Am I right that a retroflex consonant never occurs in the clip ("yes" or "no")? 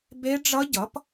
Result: no